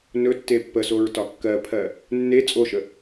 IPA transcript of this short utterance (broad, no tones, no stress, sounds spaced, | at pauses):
n ɵ tː e pː ə s o ɹ t ɒ kː ɜ pʰ ɜ | nː e t͡sʼ o ʃ ə